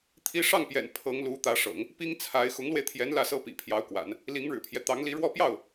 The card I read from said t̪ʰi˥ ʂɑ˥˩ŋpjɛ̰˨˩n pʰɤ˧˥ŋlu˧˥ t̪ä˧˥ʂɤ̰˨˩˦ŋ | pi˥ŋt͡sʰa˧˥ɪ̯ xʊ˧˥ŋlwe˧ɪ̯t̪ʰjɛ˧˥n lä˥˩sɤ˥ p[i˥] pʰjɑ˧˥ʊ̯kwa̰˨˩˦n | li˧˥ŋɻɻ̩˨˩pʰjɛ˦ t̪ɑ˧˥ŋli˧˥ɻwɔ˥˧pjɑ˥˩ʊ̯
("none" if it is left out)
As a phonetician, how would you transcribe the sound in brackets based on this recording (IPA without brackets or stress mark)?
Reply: ḭ˨˩